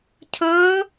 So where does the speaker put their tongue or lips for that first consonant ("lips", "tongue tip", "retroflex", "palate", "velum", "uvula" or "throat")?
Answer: palate